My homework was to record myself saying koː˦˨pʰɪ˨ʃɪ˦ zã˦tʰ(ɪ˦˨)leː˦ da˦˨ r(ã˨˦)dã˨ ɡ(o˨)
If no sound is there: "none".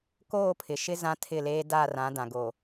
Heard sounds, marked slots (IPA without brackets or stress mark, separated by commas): ɪ˦˨, ã˨˦, o˨